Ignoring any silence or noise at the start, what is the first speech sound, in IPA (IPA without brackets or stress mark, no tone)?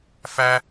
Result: f